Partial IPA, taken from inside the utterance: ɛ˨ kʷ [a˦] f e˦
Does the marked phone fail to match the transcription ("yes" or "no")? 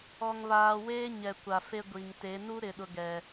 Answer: yes